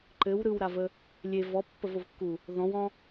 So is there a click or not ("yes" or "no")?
yes